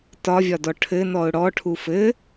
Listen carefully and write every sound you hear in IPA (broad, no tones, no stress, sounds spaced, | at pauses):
t ɒ vʲ ɒ d ɔ ʈʰ ɘ n ɔ ʊ̯ ɽ ɔ ʈʰ u f ɘ